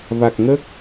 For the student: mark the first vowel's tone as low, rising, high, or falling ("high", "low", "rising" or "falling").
low